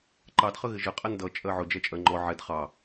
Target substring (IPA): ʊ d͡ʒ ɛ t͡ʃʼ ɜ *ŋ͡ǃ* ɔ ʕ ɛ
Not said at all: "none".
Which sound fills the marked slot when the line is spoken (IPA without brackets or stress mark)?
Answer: ŋ͡ǃ